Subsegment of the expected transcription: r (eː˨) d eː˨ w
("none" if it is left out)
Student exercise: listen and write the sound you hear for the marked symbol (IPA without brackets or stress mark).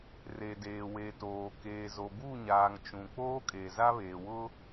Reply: e˨